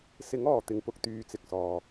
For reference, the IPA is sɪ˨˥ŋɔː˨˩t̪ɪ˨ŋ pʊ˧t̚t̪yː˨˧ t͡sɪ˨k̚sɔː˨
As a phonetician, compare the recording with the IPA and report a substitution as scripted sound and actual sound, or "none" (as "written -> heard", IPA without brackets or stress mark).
t̚ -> k̚